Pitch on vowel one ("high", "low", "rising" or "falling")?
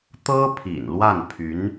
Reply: high